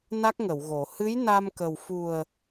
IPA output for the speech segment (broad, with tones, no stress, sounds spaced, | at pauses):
n a˦˥ k̚ ŋ ə˨˩˨ w ɣ o˨˩˨ h ɨ˧˥ j n a˧ m k ə˨˩ w f u˨˩ ə̯